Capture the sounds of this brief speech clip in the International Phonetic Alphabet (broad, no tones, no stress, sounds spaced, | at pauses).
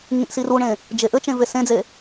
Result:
ŋ ĩ ʔ s i r u ɳ ẽ | d͡ʒ e ʔ ɘ t͡ʃ ẽ v e s ẽ d͡z e